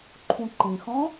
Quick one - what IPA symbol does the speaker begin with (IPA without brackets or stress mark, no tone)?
ǃʰ